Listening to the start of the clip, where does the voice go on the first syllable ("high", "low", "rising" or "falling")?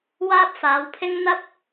high